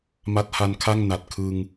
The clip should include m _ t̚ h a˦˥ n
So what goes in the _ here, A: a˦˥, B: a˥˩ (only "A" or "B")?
A